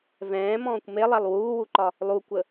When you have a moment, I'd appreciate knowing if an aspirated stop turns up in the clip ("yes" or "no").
no